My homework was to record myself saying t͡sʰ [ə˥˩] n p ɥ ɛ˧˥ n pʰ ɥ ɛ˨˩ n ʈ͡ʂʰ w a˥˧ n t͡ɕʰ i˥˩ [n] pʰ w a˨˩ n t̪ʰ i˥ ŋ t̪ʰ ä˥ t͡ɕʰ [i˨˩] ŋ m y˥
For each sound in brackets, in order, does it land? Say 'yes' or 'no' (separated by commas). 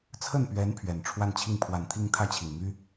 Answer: yes, no, yes